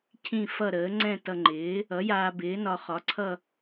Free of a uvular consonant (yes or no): no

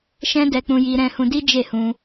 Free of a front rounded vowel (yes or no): yes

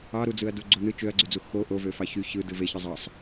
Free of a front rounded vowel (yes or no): no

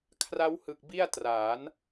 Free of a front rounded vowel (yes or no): yes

